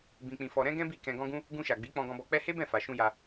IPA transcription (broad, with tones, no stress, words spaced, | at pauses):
bĩ˧k͡pĩ˧fɔ˧ ɾɛ̃˦ɡɛ̃˦bi˦˨ kɛ̃˧ɡɔ̃˦ɡũ˦ | ɡũ˧ʃa˨ɡ͡bi˨˦ k͡pɔ̃˧ɡɔ̃˧bɔ˧k͡pɛ˦ he˦bɛ̃˦˨fa˨ʃũ˧ ja˧